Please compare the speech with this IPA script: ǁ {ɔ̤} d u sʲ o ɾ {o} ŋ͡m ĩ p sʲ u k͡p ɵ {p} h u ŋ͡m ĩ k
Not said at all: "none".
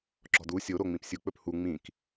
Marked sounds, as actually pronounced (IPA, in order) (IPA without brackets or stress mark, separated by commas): ɔ̤, o, p